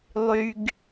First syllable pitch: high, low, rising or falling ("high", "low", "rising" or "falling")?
low